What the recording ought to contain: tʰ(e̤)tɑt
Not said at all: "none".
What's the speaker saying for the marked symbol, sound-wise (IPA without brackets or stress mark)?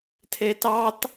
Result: e